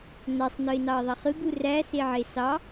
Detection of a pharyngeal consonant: present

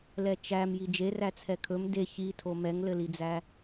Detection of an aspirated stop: present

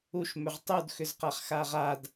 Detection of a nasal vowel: absent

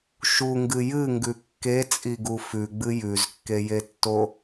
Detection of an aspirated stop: absent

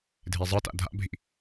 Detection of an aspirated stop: absent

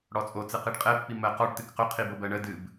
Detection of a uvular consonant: present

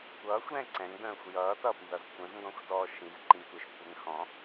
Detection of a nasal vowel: present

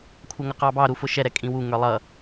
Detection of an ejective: present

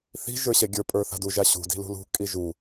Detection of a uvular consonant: absent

